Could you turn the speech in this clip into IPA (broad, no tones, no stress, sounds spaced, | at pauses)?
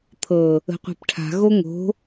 t̪ʰ ɤ | ə̤ qʷ ɛ̤ p ʈʰ a̤ ɣ o ŋ o̤